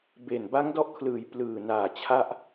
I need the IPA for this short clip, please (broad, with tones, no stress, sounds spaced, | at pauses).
b e˨˩ n b a˦˥ ŋ d ɔ˦˥ ʔ kʰ l ɯː˨˩ j p l ɯː˨˩ n aː˨˩ t͡ɕʰ a˥˩ ʔ